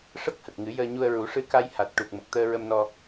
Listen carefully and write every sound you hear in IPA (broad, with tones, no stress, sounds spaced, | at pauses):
ʂ ə˦˥ k̚ h ə˨˩ k̚ ŋ ɨ˨˩˦ j əː˧ ɲ u˧ ə̯ ɹ u˨˩˦ ʂ ɨ˧ k a˧ j h a˨˩ t̚ ʈ u˨˩ k̚ m ə˨˩ k̚ t̪ əː˧ ɹ ə˧ m n ɔ˧